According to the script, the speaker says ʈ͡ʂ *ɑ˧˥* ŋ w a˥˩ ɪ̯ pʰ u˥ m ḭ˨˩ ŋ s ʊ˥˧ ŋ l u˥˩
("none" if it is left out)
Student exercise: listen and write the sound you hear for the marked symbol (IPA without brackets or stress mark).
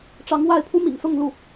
ɑ˧˥